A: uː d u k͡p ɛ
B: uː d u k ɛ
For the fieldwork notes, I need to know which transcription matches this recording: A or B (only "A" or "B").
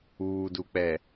A